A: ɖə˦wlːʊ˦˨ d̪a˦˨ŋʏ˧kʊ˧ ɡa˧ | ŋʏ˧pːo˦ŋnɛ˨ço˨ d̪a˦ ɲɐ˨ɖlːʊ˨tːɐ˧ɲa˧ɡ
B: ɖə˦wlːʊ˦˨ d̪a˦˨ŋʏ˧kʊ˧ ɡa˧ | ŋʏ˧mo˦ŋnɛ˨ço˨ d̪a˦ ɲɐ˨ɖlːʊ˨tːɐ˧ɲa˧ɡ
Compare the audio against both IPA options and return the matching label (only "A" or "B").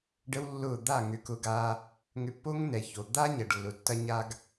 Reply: A